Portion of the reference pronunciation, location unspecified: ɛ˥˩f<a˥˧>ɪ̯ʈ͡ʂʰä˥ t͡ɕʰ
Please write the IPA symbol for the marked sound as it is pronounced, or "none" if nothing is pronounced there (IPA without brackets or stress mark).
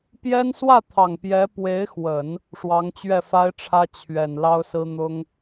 a˥